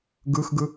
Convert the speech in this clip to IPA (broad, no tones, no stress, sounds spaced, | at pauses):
ɡ ɯ x ɡ ɯ